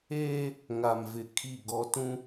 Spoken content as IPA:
eː˦ | ŋ a˨ m v ɪ˨ kʰ i˦˨ ɡ ɔ˦ t ũ˦

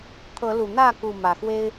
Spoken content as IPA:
t̪ʰ ɤ˨˦ l u˨˩ n̪ ä˥˨ k u˥˨ m ä˨˩ x w e˦ ɪ̯

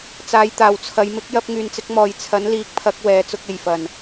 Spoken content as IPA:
t͡s aː˨˧ j t̪ aː˨˩ w t͡sʰ ɐ˨˧ j m ɪ˨˥ k̚ j ɐ˧ p̚ ŋ yː˨ n t͡s ɪ˧ k̚ m ɔː˨ j t͡sʰ ɐ˨˥ n l iː˨˥ k̚ pʰ ɐ˨˥ k̚ w ɛː˨ t͡s ʊ˧ k̚ e˨˩ j f ɐ˨˩ n

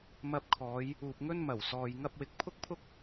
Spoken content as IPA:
m ɐ˧ p̚ kʰ ɔː˨˧ j | uː˨ p̚ ŋ ɵ˥ n m ɐ˨˩ w s ɔː˨ j ŋ ɐ˥ p̚ w ɪ˧ k̚ pʰ ʊ˥ k̚ pʰ ʊ˥ k̚

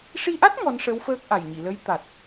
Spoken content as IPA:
ʂ i˧ ʔ a˦˥ t̚ ŋ ɔ˧˥ n ʂ ə˧˥ w f əː˦˥ k̚ ʔ a˨˩ j ɲ i˨˩˨ l ə˧˥ j t̪ a˨˩ t̚

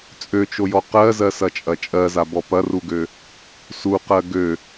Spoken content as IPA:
t͡sʼ ø t͡ʃ o j ɔ q ɜ z ɜ s ɐ t͡ʃʼ ɐ t͡ʃʼ ɜ z a b ɔ p ɐ r u ɡ ø | s u q ɜ ɡ ø

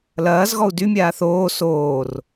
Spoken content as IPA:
l ɐː z ɣ ɔ u̯ d y mʲ aː θ oː s oː r

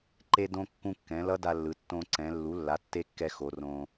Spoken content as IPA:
ǃ e˧ d õ˧ kː ũ˧ kː ɛ̃˩˧ l ʌ˦˥ d a˧ lː ɯ˩˧ tː õ˧ ǀ ɛ̃˩˧ lː u˩˥ lː a˩˥ tː e˦˥ kː ɛ˧ x o˩˧ r õ˧

